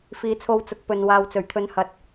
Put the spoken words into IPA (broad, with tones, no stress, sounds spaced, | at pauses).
f iː˨˥ t͡sʰ o˧ w t͡s ʊ˨ k̚ p ɵ˨ n w aː˨ w t͡s ɵ˨˩ ɥ t̪ʰ ɵ˨˥ n h ɐ˨ t̚